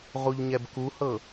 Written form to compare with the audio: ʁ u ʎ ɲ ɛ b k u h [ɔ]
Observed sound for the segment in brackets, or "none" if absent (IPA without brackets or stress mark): ɤ